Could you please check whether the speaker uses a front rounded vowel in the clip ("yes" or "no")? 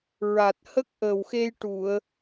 no